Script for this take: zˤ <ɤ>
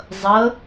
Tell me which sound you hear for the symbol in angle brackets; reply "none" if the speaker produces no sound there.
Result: ɤ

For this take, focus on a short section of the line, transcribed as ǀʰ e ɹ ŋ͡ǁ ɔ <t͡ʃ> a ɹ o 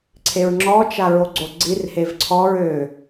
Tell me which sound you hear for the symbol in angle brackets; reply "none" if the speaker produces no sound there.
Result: t͡ʃ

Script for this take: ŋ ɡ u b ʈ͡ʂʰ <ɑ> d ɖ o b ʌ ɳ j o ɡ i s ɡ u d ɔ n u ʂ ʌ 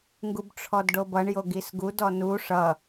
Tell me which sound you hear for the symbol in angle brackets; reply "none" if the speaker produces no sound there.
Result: ɔ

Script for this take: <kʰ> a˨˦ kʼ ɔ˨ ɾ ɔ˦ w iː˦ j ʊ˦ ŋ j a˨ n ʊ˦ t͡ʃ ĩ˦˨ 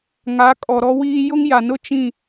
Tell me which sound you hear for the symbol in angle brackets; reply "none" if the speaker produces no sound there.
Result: ŋ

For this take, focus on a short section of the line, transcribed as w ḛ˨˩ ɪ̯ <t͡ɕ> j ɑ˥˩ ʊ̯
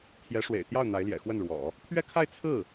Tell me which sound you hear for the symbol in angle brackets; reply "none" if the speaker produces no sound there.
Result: t̪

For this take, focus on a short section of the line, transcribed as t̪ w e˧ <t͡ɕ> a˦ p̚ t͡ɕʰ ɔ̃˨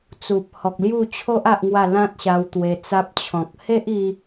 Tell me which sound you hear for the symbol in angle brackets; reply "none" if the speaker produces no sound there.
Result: t͡s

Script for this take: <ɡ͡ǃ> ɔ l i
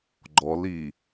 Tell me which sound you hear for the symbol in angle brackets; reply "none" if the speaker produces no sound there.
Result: ɡ͡ǃ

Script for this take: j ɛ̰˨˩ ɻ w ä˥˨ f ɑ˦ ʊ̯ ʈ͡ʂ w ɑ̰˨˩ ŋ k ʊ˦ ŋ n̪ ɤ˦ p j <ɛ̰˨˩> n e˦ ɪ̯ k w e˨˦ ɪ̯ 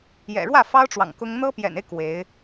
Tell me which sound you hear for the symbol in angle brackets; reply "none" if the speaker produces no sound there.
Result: ɛ̰˨˩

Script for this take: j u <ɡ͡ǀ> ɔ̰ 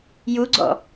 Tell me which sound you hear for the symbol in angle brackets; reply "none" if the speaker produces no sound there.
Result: ɡ͡ǀ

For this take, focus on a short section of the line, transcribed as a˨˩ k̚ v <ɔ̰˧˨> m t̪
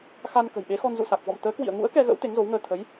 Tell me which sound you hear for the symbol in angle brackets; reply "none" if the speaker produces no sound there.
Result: ɔ̰˧˨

